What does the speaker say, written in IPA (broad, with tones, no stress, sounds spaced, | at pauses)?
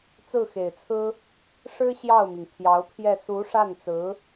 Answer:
t͡s ɹ̩˥˩ x e˨˩ ɪ̯ t͡sʰ ɹ̩˥ | ʂ ɻ̩˥ ɕ j ɑ˥˩ ʊ̯ m i˩ ŋ pʰ j ɑ˧˥ ʊ̯ pʰ j ɛ˥˩ s u˧˥ ʂ a˥˩ n t͡s ɹ̩˧˥